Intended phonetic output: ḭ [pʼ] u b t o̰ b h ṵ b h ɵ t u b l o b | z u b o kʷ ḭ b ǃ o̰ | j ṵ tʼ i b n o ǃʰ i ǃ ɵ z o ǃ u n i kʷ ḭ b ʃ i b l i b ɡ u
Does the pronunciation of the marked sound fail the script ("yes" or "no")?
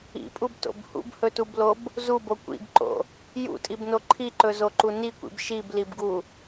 no